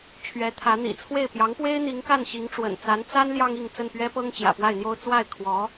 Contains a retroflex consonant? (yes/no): yes